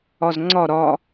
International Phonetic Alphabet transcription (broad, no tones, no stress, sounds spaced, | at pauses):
ɒ z ŋ͡ǀ ɒ ɾ ɒ